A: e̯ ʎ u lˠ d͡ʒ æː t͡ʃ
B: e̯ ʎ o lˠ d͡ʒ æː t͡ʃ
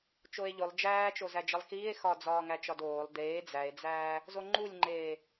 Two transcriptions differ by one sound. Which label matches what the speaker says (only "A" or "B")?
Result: B